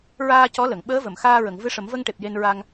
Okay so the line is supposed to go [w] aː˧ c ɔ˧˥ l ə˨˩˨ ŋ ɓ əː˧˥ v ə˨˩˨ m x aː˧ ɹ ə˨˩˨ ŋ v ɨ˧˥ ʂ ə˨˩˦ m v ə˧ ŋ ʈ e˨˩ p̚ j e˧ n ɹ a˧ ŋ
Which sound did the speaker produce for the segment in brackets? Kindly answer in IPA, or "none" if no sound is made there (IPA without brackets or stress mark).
ɹ